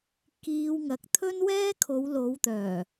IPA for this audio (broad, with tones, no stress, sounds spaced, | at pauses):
k iː˧ w ŋ ɐ˨˥ k̚ t̪ʰ ɵ˥ n w ɛː˥ kʰ o˨˧ w l o˨˧ w t̪ œː˨˩